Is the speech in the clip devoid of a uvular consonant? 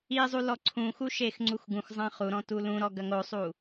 no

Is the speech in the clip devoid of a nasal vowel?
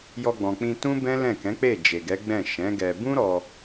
no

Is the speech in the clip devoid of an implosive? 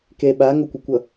no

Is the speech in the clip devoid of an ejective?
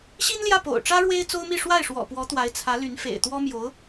yes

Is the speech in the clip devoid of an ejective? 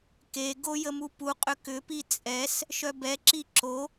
no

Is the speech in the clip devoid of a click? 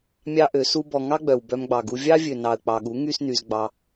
yes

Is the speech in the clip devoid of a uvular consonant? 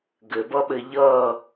yes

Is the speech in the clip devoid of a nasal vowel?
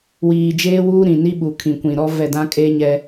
no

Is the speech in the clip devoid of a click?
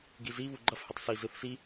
no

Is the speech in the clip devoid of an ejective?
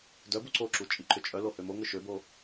no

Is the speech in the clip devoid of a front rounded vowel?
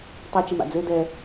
no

